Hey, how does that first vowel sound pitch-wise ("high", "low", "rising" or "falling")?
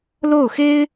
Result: falling